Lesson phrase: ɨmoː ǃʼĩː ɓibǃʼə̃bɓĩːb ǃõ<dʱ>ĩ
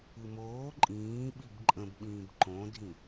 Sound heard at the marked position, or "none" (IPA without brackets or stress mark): dʱ